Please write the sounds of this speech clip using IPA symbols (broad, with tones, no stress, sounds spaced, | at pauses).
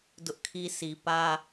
d ʊ˦ ʔ kʰ i˦ s i˨ p ä˦